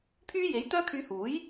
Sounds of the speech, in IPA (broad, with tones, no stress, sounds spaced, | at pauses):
pʰ yː˥ j e˨˥ j t̪ œː˥ kʰ yː˧ h uː˨˥ j